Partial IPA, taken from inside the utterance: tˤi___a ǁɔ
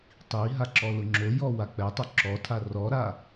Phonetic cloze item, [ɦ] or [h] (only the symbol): ɦ